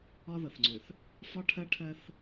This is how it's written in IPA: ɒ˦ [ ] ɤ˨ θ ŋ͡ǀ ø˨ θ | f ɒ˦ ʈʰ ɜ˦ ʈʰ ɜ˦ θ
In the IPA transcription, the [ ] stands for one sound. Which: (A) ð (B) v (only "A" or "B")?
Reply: A